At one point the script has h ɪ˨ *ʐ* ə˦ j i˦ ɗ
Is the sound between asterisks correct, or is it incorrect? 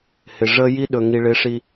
correct